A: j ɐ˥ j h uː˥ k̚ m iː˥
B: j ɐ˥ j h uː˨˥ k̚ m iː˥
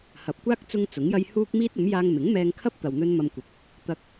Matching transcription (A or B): A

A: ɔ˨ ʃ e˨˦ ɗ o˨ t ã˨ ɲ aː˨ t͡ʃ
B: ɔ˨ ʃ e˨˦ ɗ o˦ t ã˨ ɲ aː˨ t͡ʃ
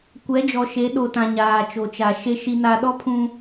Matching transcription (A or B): A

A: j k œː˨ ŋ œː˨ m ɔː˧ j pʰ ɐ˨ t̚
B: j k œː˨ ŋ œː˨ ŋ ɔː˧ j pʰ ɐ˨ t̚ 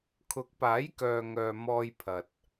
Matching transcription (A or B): A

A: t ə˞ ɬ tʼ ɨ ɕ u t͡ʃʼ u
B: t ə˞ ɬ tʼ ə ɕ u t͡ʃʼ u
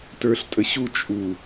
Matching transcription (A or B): B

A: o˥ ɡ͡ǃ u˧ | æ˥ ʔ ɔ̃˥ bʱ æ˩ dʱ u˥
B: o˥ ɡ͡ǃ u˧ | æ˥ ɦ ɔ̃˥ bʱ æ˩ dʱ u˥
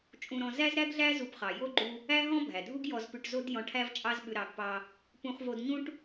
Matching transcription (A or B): B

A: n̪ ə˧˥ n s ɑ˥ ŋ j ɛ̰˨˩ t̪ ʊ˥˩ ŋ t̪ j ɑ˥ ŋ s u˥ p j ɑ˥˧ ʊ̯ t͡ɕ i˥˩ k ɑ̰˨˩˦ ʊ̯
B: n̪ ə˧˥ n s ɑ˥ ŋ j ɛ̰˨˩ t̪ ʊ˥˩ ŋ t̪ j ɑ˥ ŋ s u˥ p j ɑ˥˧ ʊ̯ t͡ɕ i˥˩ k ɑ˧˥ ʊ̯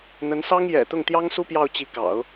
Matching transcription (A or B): A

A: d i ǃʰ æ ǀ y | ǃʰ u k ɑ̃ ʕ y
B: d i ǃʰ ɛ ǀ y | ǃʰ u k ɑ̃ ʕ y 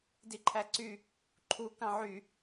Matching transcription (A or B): A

